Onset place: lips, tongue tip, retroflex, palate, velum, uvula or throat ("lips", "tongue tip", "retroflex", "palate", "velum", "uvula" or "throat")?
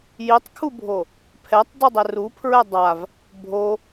palate